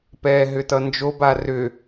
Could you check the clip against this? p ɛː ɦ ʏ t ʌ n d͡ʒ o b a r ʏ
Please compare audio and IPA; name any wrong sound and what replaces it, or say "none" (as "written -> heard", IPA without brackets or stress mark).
none